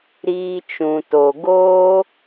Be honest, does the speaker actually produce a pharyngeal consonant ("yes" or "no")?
no